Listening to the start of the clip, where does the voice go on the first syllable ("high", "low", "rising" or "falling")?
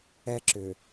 high